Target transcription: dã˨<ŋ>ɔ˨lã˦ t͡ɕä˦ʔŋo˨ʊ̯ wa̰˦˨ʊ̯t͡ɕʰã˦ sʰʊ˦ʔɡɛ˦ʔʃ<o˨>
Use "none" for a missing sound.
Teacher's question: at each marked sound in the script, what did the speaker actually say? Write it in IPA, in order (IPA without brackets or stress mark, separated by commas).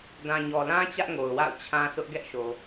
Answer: ɲ, o˨